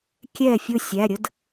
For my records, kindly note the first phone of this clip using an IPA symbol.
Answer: kʲ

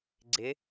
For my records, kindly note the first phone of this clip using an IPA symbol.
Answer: ɡ͡ǀ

